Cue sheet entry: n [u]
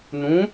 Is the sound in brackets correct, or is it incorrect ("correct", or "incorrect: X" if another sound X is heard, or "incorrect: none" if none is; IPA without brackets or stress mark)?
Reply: incorrect: ũ